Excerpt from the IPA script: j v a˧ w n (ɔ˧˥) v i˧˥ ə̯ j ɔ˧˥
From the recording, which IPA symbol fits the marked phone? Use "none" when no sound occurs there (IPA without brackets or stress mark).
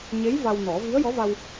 ɔ˨˩˦